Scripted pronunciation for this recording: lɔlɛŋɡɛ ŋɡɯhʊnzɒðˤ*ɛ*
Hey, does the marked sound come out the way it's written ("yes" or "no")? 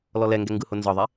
yes